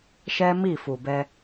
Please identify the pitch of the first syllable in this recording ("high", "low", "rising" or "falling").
high